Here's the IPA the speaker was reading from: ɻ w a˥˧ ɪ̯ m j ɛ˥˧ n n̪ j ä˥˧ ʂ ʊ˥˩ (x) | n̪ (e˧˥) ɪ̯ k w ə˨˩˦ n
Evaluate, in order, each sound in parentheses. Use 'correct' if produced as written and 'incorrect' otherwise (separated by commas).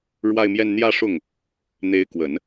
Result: incorrect, correct